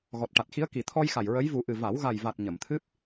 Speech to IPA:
ɣ ɔ˨˩ t̚ ʈ a˨˩ t̚ x i˧˥ ə̯ k i˨˩ t̪ʰ ɔ˧ j x a˨˩ j ɹ ə˧˥ j v u˨˩˦ ʔ ɨ˨˩ v a˨˩˦ w ɣ a˨˩ j v a˨˩ t̚ ɲ ə˨˩˨ m t̪ʰ ɨ˦˥ p̚

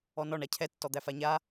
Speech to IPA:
ɔ n ɔ ɳ a cʰ ɛ tː ɔ d̪ æ f a ɲ a

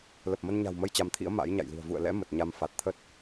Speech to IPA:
l ə˨˩ p̚ m ə˧ n ɲ a̤˨˩ w m ə˧ j t͡ɕ a˨˦ m t̪ʰ ḭ˧˥ ə̯ m a̰˧˥ j ɲ a̰˧˨ j l i̤˨˩ ə̯ v ṵ˧˨ ə̯ l ɛ̰˧˥ m ə˨˩ t̚ ɲ a˧ m f a˨˩ t̚ t̪ʰ ə˦˥ t̚

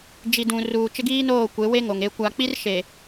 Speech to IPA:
d͡ʒ i˨ d ũ˨ r uː˨ t͡ʃ ɪ˦ ɡ iː˦ n oː˦˨ kʷ e˨˦ w e˦ ŋ o˨ ŋ e˨ kʷ a˨ k͡p i˦ r ʃ e˨

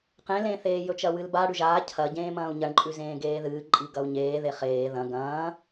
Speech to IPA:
q ẽ l ẽ θ eː j ɵ t͡ʃ ɐ w ɨ l b a ɽ ʉ ʒ aː cʰ ɐ ɟ ẽː m ɐ̃ː u̯ ɲ ɐ ɳ ǃʼ ʉ z ẽː ɡ eː ð ɨː ǃʼ i ɡ ɐ u̯ ɲ eː ð e χ eː ð ɐ̃ ɡ ɐ̃ː

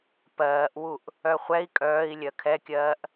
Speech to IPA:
p ɜː ʔ w u ʔ | œ χʷ ɛ i̯ kʼ œː i̯ lʲ ɜ kʰ ɛ kʲ ɜː ʔ

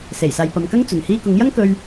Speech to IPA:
s e˨˩ j s aː˨ j p ɐ˨ m k ɐ˥ ŋ t͡s ɵ˨˩ n h iː˧ k ʊ˨˥ ŋ j ɐ˥ ŋ k ɵ˧ ɥ

